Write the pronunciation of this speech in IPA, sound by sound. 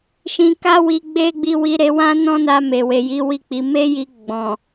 ʃ ĩ˨ k a˧ w i˧ ɡ͡b e˦ ɡ͡b i˧ w i˧ ɾ e˧ w ã˦ n ɔ̃˦ n a˧ m e˨ w e˨ j i˨˦ w i˦˨ k͡p i˨˦ m e˦ j i˧ ɡ͡b ɔ̃˨

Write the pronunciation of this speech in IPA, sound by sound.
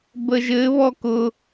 b ə ʒ ɘ β ɔ k ʊ

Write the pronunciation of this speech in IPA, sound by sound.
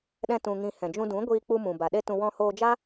ɗ ɛ̃˧ t ũ˧ ŋ ĩ˧ h ɛ̃˨ d͡ʒ ũ˧ d ũ˨˦ ɡʷ iː˧ k͡p u˧ m ũ˨ b a˨ ɗ e˦ t ũ˧ w ɔ̃˧ h oː˧ d͡ʒ a˦

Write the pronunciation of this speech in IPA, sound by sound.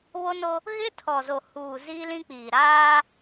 β o˦ n o˦ | ɣ ɪ˦ tʰ ɔ˨ z o˨ h uː˨ z iː˦ l ĩ˦ k͡p iː˨ ɾ aː˦

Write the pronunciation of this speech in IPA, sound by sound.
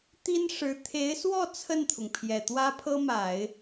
t̪ i˥ n ʂ ɻ̩˧˥ t̪ʰ e˧˥ ɪ̯ s w ɔ˥˧ t͡sʰ ə˥˩ n t̪ʰ ʊ˩ ŋ pʰ j ɛ˨˩ t̪ w ä˥ pʰ ɤ˥ m a˨˩˦ ɪ̯

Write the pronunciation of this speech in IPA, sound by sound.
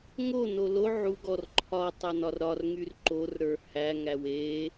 ŋ o n o l o ʕ u ɡ ɔ r ǃʰ ɒ tˤ æ n ɒ r ɾ ɒ r ŋ y r ǃ o r ɾ ə˞ h æ ŋ æ w e

